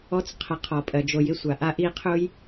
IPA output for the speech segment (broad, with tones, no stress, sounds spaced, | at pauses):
ɔ˦ t͡s qʰ ə˨ qʰ ɔ˩ pʼ ɜ˩ d͡ʒ o˨ j ɪ˦ sʷ a˩ ʔ a˦ ʔ i˦ qʰ ʊ˥ j